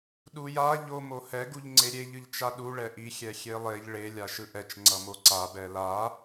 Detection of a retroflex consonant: present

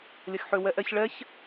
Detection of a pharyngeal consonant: present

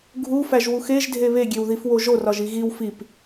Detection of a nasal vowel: absent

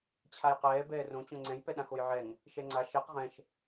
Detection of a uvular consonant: present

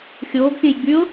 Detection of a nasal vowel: present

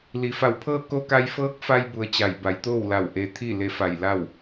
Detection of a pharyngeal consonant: absent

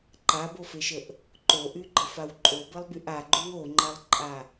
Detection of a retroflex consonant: absent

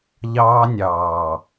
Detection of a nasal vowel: absent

